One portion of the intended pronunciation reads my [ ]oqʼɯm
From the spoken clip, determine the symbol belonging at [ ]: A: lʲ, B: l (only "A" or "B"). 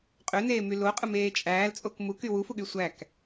B